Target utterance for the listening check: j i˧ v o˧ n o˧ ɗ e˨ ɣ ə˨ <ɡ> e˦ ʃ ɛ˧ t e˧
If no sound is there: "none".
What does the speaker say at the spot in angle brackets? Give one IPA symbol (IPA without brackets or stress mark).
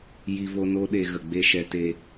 ɡ͡b